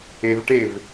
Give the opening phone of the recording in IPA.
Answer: e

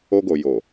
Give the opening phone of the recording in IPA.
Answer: o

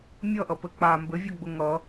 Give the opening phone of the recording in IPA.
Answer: mʲ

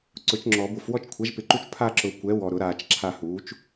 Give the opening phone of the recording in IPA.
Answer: ǀ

